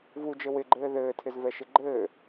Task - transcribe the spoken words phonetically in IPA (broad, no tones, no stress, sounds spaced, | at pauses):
v u d͡ʒ ɘ w ɪ ɡ͡ǃ ɘː ð ɘː tʰ ɪ z v ɛ ʃ ɪ ɡ͡ǃ ɘː